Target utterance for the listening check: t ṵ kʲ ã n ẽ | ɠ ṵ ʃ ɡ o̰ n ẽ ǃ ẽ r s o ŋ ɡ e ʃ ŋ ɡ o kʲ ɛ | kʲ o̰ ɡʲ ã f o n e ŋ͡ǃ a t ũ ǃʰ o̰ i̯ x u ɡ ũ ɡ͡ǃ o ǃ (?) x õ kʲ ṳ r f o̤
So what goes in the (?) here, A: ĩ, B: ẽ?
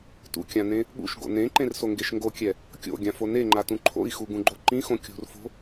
A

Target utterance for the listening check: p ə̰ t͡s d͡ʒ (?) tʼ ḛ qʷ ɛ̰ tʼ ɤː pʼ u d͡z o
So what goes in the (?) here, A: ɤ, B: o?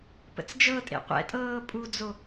A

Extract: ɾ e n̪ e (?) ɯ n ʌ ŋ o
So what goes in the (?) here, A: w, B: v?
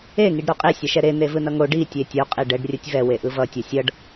B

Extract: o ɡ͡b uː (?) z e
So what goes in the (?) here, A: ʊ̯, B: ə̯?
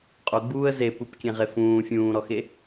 B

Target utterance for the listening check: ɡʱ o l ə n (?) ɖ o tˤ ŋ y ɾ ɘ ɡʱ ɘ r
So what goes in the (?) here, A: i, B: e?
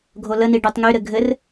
A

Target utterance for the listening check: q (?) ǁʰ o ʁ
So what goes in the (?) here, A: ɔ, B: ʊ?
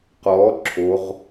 A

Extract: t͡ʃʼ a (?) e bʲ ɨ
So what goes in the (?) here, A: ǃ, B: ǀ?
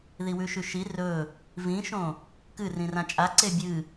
B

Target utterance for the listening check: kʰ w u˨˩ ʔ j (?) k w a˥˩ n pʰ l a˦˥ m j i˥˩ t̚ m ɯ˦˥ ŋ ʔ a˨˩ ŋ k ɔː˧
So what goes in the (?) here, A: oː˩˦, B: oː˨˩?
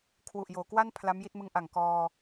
A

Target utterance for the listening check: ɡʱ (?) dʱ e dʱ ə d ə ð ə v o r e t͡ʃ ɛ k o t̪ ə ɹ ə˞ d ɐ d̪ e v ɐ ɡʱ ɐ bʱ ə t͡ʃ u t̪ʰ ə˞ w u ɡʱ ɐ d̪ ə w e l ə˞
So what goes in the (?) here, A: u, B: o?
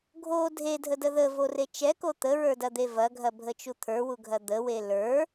B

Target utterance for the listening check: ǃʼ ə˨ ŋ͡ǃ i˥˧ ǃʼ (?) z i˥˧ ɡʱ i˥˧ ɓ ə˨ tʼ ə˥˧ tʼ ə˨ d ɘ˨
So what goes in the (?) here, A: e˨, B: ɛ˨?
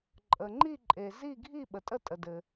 A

